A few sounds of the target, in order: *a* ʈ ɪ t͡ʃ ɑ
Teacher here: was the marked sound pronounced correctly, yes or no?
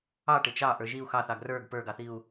no